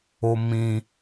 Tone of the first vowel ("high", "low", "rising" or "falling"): low